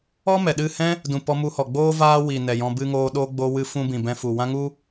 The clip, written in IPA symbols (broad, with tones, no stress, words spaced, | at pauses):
ɔ˦mɛ˨ɗɨ˦˨hɛ̃˦ | dũ˨ pɔ˧mu˧hɔ˨ɡ͡boː˦ vaː˦ wi˨nɛ˨jɔ̃˧ bɨ˧ŋoː˧ ɗo˦ ɡ͡bo˧wɨ˧fũ˧ bĩ˨bɛ̃˧fu˨wã˦ ŋu˦